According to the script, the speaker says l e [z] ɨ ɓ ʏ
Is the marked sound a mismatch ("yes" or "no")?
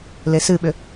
yes